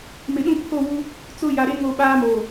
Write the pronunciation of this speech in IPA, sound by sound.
m ɪ˨ ɗ ũ˦ pʰ o˦˨ w u˦ | t͡s ʊ˦˨ j a˨ ɾ e˦ ŋ o˦˨ ɓ aː˦ m oː˨

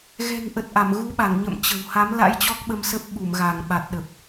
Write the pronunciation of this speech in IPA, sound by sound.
ɣ ɛ̤˨˩ ŋ ʔ ə˨˩ t̚ ʔ a˧˩ m ɣ u˨˦ ɓ a˧˩ ŋ ɲ ə̰˧˨ m t͡ɕ ə̤˨˩ w h a˨˦ m l a̰˧˥ j t͡ɕ ɔ˦˥ k̚ ɓ ə˧ m s ə˦˥ p̚ ɓ u˧˩ m ɣ a˧˩ ŋ ɓ a˨˩ t̚ ɗ ə˨˩ p̚

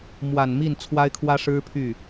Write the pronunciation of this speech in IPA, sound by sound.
m w a˨˩ n m i˥˩ n t͡sʰ w a˥ ɪ̯ kʰ w ä˥ ʂ ɻ̩˥ pʰ y˥˩

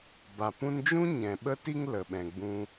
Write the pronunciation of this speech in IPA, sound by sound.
b a˨ p ũ˦ n d͡ʒ ũ˦ ɲ ɛ̃˨ ɓ ə˦ t i˦ ŋ l ə˨ ɓ ɛ̃˨ ɡ͡b ũ˧

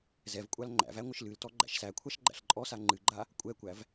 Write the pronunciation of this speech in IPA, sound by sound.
z ɛ v kʷʼ a l ŋ͡ǃ æ̰ v æ ŋʷ ɨ ʃ l ɨ l t ɔ ɡ͡ǃ æ̰ ʃ s æ kʷʰ a ʃ ɡ͡ǃ æ̰ ɬ ǃʼ ɔ s a ŋ͡ǃ ɨ ɡ͡ǃ a | kʷʼ ɛ kʷ æ v

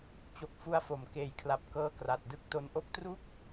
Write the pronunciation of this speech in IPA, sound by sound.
t͡ɕ o˨˩ k̚ f u˧ a̯ f o˩˦ m k eː˨˩ j kʰ l a˨˩ p̚ k ɤː˦˥ k r a˨˩ t̚ d ɯ˥˩ k̚ t o˧ n ʔ o˥˩ k̚ t r u˥˩ k̚

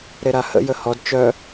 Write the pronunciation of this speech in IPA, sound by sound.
ɾ e ɾ a h ə̰ j ə h ɔ d t͡ʃ œ

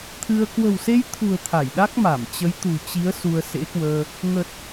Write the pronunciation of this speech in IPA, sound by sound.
t̪ʰ ɨ˧ ə̯ k w ə̤˨˩ w s e˧ j t̪ʰ ṳ˨˩ ə̯ t̪ʰ a˧˩ j ɗ a˦˥ k̚ m a˧˩ m t͡ɕ ə˨˦ j t̪ ṳ˨˩ t͡ɕ i˨˦ ə̯ s u˧ ə̯ s ḛ˧˥ k w əː˧ | ŋ ə˨˩ t̚

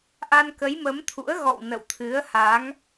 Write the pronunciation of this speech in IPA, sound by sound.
ʔ a˧ n k ə˨˦ j m ə˨˦ m t̪ʰ ṵ˧˥ ə̯ ɣ ɔ̰˧˨ w n ə̰˧˨ w t̪ʰ ɨ˨˦ ə̯ h a˨˦ ŋ

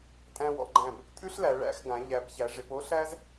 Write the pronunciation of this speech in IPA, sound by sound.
tʼ æ̃˧ w ɔ̰˩˧ ɡ͡ǃ æ̃˧˩ b | tʼ ʉ˥ ɬ l æ˩˧ ɭ æ̰˧ x ɡ ã˩˧ ʎ æ˩˧ b ç æ˩˧ ʐ ɪ˩˧ p o˥ ɬ æ˥ z

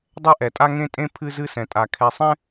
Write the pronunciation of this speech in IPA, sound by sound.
dˤ ɛ˦ ʔ ɛ˨ tʼ a˦ ŋ ẽ˦ tʼ ẽ˦ pʰ ɨ˦ z ɨ˦ s ɛ̃˨ tʼ a˨ kʰ ɛ˨ sˤ ɛ̃˦

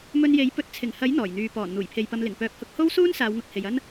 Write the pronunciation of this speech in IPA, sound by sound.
m ɵ˧ n j e˨˥ j p ɵ˧ t̚ t͡sʰ ɪ˨˩ ŋ h ɐ˨˥ j n̪ ɔː˨˩ j n̪ yː˨ p ɔː˨˩ n n̪ uː˨˩ j pʰ e˨ j p ɐ˧ m l ɪ˨˩ ŋ p œː˨˥ p̚ h ʊ˧ k̚ h o˥ w s uː˥ n s aː˨˧ w ŋ ʊ˨ k̚ h e˨ j ɐ˥ n

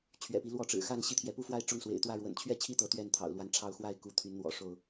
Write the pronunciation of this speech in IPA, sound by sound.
t͡ɕʰ ɥ ɛ̰˨˩ p i˦ l w ɔ˥˨ ʈ͡ʂ ɻ̩˨˩ x a˥˨ n ɕ i˥˨ t̪ʰ j ɛ˨˦ p u˦ f w a˦ ɪ̯ ʈ͡ʂ ʊ˥˨ ŋ s w ḛ˨˩ ɪ̯ t̪ w ä˥˨ ɻ w ə̰˨˩ n t͡ɕʰ ɥ ɛ˥˨ t͡ɕʰ i˥˨ t̪ ɤ˨˦ t̪ ɥ ɛ˥˨ n t̪ʰ ɑ̰˨˩ ʊ̯ l w a˨˦ n ʈ͡ʂʰ ɑ˨˦ ʊ̯ x w a˥˨ ɪ̯ k u˨˦ t̪ʰ y˨˦ n n̪ w ɔ̰˨˩ ʂ o˥˨ ʊ̯

